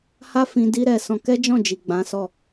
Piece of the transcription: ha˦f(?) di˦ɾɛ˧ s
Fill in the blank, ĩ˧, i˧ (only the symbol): ĩ˧